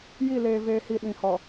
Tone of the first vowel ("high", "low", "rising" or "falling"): falling